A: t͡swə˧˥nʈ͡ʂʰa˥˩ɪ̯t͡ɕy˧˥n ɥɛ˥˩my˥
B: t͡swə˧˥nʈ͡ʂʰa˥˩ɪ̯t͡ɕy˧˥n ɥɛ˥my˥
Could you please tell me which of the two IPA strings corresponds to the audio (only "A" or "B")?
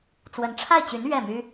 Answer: A